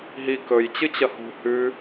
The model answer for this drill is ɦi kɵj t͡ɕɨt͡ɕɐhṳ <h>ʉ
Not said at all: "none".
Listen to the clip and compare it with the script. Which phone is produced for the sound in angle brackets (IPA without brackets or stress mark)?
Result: h